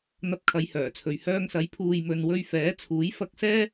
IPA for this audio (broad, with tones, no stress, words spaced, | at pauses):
n̪ɐ˧p̚kʰɐ˨˧jhœː˨˩t͡sʰɵ˨ɥ hœː˧ŋsɐ˨˥j pʰuː˨jmɵ˨nwɵ˧ɥ fɛː˨˥t͡sʰuː˨˥j fɐ˧k̚sɛː˥